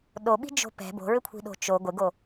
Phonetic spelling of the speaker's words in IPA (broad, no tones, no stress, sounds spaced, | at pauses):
ɗ o ɓ i̤ d͡ʒ o̤ p ɛ̤ b o̤ ɹ ʏ kʷʰ i̤ ɗ o̤ t͡ʃ o ɡʷ ɪ ɡ o